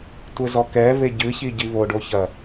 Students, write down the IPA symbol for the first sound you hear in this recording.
tʷ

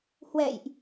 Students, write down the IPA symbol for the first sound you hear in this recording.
h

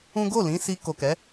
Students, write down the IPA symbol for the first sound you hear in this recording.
ũ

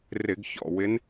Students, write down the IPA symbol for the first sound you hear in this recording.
r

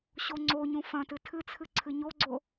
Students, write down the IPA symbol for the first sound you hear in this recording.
ɕ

